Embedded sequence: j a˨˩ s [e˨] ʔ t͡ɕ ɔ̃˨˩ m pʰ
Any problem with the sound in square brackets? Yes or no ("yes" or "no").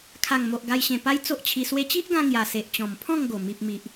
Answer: no